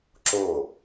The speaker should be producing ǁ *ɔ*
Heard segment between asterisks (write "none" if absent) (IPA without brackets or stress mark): o